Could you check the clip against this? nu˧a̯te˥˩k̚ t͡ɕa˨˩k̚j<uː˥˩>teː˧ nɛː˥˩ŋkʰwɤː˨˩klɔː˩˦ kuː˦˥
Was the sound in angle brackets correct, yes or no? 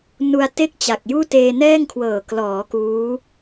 yes